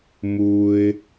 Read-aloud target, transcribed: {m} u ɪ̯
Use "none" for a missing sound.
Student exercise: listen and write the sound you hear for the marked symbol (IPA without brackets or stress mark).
m